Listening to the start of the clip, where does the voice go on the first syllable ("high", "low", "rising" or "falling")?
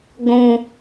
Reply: low